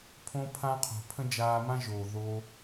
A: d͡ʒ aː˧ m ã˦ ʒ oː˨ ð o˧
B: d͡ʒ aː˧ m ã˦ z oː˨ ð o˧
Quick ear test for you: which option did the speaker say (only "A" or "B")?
A